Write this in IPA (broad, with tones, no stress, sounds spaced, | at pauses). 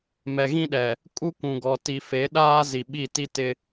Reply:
m ɛ˨ ɣ ĩ˦ ɗ ɛ˨ | kʼ u˦ kʷ ũ˨ ɡ ɔ˨ t i˨ f e˨˦ ɗ aː˦ z i˨ ɓ i˦˨ t i˦ t ɪ˦